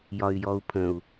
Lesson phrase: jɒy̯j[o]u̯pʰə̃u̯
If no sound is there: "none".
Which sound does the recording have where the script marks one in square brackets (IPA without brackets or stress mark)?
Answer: ɔ